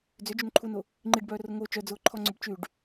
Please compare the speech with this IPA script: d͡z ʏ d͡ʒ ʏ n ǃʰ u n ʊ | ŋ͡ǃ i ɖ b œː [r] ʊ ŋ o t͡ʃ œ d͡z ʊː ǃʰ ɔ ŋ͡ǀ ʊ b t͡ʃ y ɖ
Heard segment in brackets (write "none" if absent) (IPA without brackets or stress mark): r